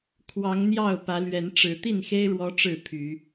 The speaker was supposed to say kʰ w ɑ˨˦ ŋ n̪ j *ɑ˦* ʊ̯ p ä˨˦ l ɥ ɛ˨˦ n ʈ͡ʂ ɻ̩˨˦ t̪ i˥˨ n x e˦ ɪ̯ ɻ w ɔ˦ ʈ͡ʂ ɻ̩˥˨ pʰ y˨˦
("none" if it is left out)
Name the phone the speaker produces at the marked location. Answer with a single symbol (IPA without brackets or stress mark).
ɑ˥˨